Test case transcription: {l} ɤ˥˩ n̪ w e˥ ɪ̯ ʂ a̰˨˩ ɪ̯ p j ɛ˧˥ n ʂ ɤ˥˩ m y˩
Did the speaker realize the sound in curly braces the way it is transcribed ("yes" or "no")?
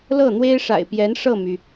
yes